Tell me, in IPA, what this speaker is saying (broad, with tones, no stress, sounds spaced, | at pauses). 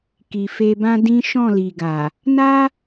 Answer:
k i˨ f e˧ b ã˦ d ĩ˦ ʃ ɔ̃˦˨ l i˨ ɡ a˨ | n a˦